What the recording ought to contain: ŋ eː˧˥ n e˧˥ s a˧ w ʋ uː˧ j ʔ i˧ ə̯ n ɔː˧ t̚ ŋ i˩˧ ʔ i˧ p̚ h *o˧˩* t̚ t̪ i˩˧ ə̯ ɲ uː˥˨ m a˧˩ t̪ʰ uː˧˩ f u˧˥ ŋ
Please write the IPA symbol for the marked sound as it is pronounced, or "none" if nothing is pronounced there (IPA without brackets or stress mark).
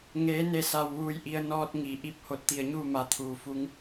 o˧˩